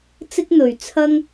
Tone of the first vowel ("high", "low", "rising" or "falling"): high